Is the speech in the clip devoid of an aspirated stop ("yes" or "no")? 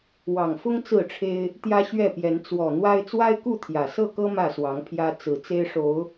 no